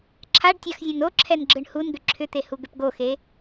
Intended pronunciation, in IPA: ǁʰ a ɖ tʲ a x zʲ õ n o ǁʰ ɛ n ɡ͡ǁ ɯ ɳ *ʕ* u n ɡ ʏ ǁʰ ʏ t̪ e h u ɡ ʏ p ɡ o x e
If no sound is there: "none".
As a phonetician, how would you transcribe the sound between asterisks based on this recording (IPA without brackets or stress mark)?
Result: h